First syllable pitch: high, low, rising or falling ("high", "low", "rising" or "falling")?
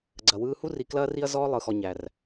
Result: low